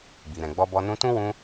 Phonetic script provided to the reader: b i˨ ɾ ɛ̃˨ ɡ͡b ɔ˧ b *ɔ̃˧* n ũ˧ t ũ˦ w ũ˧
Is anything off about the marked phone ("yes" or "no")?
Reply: yes